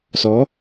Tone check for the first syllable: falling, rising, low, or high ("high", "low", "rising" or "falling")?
rising